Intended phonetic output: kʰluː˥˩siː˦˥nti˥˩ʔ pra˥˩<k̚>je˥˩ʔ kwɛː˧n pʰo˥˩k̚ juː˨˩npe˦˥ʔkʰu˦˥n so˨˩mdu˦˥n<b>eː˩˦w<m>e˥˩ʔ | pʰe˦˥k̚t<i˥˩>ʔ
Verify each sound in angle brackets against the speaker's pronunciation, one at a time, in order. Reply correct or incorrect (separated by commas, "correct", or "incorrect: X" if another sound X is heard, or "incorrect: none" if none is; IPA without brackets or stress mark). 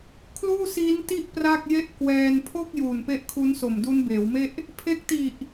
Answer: correct, correct, correct, incorrect: i˨˩